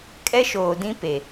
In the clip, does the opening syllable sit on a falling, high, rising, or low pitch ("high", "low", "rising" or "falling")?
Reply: high